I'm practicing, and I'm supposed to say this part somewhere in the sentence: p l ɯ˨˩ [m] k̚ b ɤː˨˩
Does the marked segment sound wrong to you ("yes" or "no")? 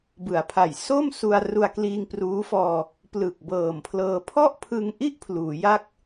yes